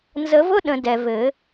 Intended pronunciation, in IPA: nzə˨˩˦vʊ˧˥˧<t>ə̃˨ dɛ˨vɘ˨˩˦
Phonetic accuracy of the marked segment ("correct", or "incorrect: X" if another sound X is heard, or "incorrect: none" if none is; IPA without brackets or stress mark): incorrect: ɗ